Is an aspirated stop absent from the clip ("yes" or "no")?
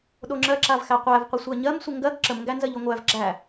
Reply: yes